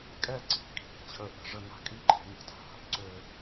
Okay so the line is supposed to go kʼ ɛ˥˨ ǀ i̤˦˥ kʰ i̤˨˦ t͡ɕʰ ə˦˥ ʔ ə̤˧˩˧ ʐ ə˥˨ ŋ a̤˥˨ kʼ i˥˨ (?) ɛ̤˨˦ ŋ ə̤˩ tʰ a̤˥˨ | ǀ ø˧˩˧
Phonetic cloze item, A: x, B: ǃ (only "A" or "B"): B